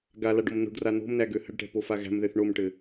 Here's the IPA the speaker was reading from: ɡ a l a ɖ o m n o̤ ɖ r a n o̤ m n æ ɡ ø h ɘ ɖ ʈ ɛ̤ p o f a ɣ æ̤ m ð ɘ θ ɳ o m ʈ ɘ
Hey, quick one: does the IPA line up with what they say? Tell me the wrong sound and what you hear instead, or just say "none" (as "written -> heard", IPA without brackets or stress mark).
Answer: none